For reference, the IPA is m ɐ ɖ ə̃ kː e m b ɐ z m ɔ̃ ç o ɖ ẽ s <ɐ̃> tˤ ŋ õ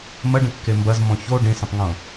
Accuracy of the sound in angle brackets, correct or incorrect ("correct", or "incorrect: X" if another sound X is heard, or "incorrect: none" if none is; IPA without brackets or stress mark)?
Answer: correct